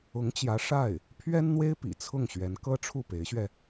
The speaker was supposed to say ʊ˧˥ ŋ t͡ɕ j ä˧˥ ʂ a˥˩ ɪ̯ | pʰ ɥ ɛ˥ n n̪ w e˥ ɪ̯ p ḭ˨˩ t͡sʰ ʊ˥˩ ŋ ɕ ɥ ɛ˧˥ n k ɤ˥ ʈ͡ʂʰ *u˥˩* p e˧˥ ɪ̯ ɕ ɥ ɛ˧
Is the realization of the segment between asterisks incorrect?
no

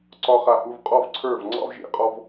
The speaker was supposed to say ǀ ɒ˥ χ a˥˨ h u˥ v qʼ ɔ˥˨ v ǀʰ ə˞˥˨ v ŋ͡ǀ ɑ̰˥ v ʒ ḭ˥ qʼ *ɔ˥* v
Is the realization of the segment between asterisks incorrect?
no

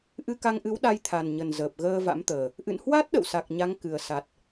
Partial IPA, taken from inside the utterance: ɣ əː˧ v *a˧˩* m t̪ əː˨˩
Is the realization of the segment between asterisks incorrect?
yes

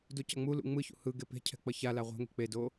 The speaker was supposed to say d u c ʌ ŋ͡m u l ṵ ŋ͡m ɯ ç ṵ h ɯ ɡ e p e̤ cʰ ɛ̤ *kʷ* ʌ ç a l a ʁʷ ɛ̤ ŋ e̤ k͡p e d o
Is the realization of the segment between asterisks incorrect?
yes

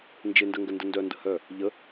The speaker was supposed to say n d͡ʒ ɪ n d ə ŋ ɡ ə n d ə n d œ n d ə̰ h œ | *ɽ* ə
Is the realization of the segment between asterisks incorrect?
yes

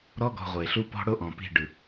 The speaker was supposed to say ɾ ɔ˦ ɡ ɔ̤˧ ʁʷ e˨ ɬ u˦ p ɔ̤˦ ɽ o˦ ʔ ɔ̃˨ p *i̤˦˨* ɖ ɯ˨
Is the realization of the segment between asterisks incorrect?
no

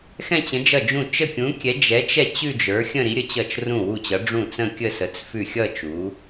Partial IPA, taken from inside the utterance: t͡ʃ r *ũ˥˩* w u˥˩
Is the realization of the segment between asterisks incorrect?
no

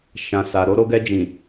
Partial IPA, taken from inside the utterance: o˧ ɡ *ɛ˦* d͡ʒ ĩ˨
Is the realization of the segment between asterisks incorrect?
yes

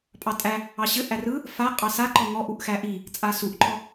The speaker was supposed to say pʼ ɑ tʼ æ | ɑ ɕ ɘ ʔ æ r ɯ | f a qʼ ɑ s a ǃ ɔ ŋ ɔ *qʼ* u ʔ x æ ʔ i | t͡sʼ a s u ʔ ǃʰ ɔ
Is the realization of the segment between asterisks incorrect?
yes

